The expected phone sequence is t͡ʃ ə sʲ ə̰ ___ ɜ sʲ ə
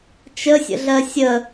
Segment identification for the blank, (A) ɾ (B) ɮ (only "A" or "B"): B